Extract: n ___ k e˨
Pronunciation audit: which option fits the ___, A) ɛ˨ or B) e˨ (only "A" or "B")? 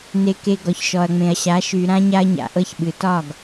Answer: B